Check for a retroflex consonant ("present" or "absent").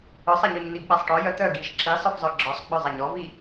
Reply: present